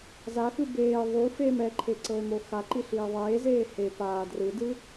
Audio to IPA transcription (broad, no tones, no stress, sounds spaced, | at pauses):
z a x ɯ b eː ðˤ u f eː m ɛ ǃʰ e ǀ ɤ e̯ m o x a ǃ i ɬ iː ðˤ eː z eː h e p aː d r ɯ d ɯ